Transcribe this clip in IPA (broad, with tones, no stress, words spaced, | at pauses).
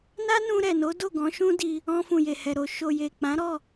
na˦nũ˧ɾɛ˨no˨˦ do˦˨ɡɔ̃˨˦ʃũ˦di˧ | ɔ̃˧ fũ˨je˨hɛ˨ɾo˨ ʃo˨je˨k͡pã˨˦ɾɔ˦˨